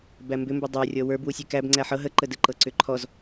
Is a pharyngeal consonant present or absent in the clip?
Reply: present